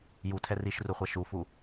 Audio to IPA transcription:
jutʰɛ riʃruχʷɛ ʃufu

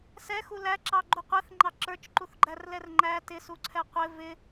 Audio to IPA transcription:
sɛxu læǁɑɡ͡ǃu qʷɛθŋ͡ǃɑ ǁə˞t͡ʃǃuθɡ͡ǃærlɛr ŋ͡ǃæ tɪsuǀʰɛ qʷɪ vɪ

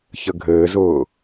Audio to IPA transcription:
çəɡʱɘːzʊː

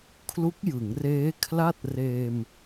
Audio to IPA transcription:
kʰlu˦˥k̚jɯ˩˦ŋreː˦˥ kʰla˥˩t̚ reː˧m

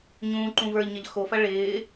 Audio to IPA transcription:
ɲũːǃũ və˞ʎɲɐʎ xofɐ ɭɪː

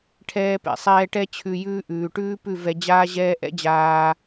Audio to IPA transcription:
ʈʰɛː˧pɛ̰˨sˤɛː˧ʈɛ˦ t͡ɕʰʉ˧jʉː˦ ʔʉː˨ʈʉː˦pʉ˦˨ vɛ˧d͡ʑaː˦ʑɛː˦ ʔɛ̰˦d͡ʑaː˧

